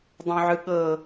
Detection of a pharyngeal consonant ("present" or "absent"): present